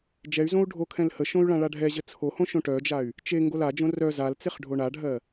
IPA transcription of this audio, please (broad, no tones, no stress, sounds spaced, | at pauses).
d͡ʒ ɛ y̯ z õ u̯ ɖʱ o kʰ ɛ̃ l h ə ʃ õ y̯ ɭ ã ɭ a ɖʱ ɛ ʑ ə t͡sʰ o h õ ʃ õ ʈ œ d͡ʒ a y̯ | t͡ʃ e ŋ ɡ o l a d͡ʒ õ r œ z a l t͡s e χ ɖʱ o ɳ a ɖʱ ɜ